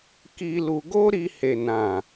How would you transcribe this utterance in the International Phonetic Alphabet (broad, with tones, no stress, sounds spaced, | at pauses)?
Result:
k i˧ l u˧ ɡ o˦ ɾ i˧ h e˨ n ã˨